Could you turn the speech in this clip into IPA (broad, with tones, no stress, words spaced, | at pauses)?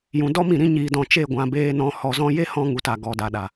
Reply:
jũ˨dɔ˦mĩ˨ ɾĩ˧ɲiː˨dɔ̃˨ t͡ʃe˦˨ɡʷã˨ beː˧nɔ̃˧ hɔ˨zɔ̃˧ je˦hɔ̃˧ŋu˨t a˨ɡɔ˨da˨ɗa˨